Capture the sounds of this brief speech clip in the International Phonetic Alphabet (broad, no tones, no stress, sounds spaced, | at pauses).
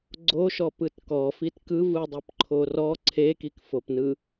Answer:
ɡ͡ǀ o ʃ ɔ p ɯ t k ɔ f i t k ɯ v ɯ dˤ i p ǃʰ o r ɔ ǀʰ e k i k f o p n ɯ